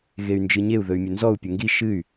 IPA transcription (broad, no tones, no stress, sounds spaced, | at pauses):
ɣ e y̯ n d͡ʒ ɨ ɲ e u̯ ð ɵ y̯ mʲ ɵ n z ɔ u̯ pʲ ɵ ŋ ɡ i ʃ ɨ y̯